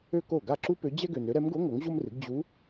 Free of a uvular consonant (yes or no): yes